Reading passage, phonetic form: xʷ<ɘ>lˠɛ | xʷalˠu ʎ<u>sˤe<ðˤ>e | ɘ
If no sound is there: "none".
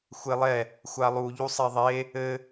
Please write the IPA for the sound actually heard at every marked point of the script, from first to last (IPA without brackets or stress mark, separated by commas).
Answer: e, u, ðˤ